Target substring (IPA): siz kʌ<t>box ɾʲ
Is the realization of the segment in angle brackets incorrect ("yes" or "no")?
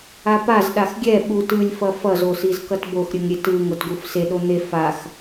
no